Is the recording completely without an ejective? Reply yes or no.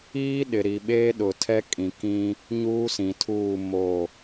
no